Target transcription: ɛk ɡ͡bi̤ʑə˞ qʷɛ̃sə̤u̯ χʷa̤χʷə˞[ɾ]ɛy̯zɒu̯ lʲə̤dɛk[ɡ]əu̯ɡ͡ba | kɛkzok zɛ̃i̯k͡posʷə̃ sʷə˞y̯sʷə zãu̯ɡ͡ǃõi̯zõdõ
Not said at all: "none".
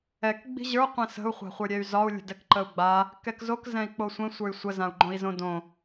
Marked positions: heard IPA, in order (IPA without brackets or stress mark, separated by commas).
ɾʲ, ǃ